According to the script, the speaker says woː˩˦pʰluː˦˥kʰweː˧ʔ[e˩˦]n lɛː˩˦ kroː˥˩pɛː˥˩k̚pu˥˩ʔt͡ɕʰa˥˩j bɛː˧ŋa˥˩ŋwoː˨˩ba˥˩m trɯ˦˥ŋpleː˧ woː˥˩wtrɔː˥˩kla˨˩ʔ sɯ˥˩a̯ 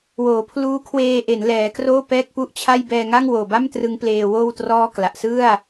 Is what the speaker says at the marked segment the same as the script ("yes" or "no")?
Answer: yes